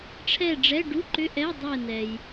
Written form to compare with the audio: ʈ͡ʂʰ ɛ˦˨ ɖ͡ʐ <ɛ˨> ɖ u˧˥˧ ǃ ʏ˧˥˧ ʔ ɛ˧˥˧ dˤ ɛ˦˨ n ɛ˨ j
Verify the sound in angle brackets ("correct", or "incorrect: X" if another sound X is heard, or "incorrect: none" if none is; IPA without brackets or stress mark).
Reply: incorrect: ɛ˧˥˧